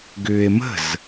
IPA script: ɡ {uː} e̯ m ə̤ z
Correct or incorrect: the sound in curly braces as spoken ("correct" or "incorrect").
incorrect